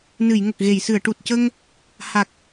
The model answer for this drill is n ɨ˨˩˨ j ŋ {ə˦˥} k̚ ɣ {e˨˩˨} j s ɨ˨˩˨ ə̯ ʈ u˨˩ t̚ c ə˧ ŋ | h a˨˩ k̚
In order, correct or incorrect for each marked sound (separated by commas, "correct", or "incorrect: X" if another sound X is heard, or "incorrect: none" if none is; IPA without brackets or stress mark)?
incorrect: ə˨˩, correct